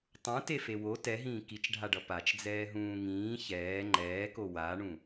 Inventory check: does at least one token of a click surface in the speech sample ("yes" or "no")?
yes